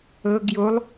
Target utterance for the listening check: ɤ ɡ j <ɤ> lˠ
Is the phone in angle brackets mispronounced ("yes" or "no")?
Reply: yes